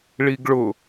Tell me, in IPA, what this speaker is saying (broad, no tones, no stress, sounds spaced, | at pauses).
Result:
ɭ i ɡ ɭ ʊ